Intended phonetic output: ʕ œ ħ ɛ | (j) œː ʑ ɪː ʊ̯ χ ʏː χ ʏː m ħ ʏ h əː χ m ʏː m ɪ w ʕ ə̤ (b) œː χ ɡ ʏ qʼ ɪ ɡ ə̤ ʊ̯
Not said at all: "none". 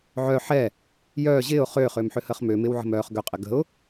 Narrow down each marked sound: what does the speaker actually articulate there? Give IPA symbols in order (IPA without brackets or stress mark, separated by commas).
j, m